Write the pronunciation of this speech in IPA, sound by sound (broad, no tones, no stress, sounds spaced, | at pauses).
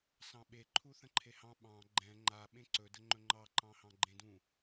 s ɑ̃ ɓ e ǃʰ u θ ə̃ ǃʰ e h ɑ̃ ɓ ɑ̃ ɡ͡ǃ ɛ̃ ŋ͡ǃ a ɓ ẽ ǀ ɵ d ə ŋ͡ǃ ɵ ŋ͡ǃ ɑ ǃ ɑ̃ h ɑ̃ ɡ͡ǃ ẽ d ũ